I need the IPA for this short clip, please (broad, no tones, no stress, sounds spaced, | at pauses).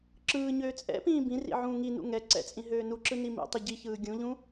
ǁ ɯː ɲ øː t͡sʼ ɛ̰ p ĩː b ĩ r ḭ ʕ ũː ŋ i n ṵ ŋ ɛ ǀ ɛ̰ t͡sʼ ĩ ɦ øː n u ǁ ɯ n i m ḭ tˤ ɨ ɟ i ç ɯː ɡʲ ũ ʎ ũ